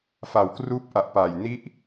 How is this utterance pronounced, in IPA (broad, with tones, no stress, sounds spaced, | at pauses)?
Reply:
f a˨˩ w k r uː˦˥ p̚ ʔ a˨˩ ʔ p aː˨˩ j n i˥˩ ʔ